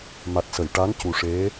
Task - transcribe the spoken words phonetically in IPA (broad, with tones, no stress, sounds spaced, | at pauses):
m a˨˩ t̚ s ə˨˩˨ j ʈ a˧˥ n c u˨˩ ʂ e˧˥